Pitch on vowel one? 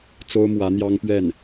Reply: high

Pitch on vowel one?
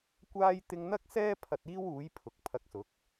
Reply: high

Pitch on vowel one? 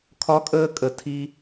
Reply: high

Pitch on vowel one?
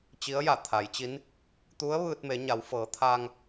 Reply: rising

